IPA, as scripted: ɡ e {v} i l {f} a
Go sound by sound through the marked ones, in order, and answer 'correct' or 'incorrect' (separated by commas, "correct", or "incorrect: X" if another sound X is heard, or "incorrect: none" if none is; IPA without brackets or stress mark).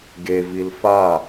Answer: correct, correct